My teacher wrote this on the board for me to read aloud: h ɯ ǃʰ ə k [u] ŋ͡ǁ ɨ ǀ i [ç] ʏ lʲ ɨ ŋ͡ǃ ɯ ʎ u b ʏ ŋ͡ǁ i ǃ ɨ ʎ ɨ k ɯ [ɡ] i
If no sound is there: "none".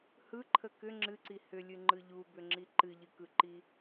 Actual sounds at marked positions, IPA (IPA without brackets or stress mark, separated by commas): ʏ, h, ǃ